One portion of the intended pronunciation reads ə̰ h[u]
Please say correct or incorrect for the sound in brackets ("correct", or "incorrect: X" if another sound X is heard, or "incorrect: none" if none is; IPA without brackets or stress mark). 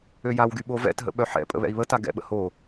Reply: incorrect: o